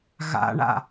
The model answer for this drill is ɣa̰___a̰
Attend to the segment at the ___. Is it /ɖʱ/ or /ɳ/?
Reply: ɳ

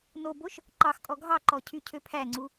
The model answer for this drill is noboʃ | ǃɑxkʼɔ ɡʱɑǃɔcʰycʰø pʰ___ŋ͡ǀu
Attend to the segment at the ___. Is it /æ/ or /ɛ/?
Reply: æ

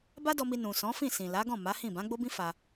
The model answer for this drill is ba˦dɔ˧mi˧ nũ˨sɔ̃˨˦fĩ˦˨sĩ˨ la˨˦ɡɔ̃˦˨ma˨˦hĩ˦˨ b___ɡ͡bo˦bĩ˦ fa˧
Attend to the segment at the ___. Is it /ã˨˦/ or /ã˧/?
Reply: ã˨˦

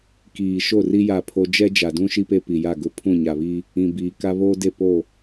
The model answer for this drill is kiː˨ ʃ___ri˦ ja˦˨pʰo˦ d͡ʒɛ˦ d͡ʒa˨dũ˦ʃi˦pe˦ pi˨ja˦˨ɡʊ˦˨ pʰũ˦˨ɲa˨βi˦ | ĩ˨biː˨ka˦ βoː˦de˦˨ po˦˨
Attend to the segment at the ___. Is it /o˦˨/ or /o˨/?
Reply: o˦˨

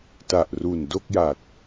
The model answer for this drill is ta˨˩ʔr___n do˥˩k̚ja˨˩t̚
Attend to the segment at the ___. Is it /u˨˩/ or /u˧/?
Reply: u˨˩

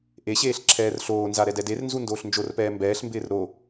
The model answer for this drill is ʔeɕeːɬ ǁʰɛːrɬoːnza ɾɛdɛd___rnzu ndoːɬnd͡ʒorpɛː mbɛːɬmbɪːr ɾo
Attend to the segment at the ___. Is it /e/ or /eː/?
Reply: e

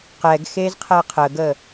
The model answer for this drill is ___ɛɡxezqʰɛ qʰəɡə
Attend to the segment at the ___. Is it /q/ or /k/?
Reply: q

